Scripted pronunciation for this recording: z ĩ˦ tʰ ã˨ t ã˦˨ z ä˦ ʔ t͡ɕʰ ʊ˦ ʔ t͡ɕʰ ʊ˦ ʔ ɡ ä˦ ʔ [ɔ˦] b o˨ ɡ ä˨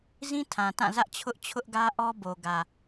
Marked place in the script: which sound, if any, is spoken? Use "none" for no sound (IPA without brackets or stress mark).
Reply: ɔ˦